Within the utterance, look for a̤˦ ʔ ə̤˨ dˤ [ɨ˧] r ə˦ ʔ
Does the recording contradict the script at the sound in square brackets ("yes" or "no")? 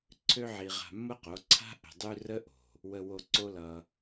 yes